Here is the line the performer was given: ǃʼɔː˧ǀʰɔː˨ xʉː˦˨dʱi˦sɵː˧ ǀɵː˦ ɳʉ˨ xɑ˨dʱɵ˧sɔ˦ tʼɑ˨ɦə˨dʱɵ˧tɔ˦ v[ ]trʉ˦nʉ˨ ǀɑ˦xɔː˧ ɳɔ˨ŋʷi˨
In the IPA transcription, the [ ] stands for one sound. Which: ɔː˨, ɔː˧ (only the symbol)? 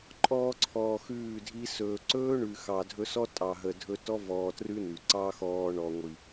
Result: ɔː˧